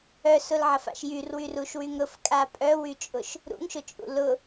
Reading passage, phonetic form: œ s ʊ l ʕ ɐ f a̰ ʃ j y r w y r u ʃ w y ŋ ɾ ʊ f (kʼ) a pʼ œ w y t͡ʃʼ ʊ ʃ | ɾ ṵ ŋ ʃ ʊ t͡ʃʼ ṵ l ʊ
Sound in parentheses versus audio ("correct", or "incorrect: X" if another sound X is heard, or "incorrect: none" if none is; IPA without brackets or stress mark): correct